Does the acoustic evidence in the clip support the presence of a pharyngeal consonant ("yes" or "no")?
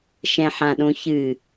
yes